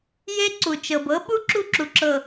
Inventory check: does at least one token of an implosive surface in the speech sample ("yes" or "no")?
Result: yes